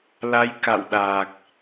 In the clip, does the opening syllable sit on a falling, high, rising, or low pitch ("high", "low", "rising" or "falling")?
rising